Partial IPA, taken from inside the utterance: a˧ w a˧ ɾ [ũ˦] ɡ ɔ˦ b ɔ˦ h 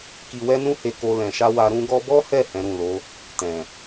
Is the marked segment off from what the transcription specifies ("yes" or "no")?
no